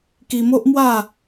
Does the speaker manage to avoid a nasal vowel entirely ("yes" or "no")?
yes